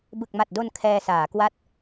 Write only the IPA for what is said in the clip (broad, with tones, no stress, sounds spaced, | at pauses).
b ɯ˨˩ k̚ m a˨˩ t̚ d o˧ n kʰ ɛː˧ s aː˩˦ k w a˥˩ t̚